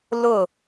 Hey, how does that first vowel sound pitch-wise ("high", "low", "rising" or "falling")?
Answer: falling